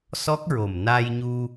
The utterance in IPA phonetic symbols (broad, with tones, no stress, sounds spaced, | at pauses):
s ɔ˦˥ k̚ ɹ o˨˩ m n a˧ j ɲ u˧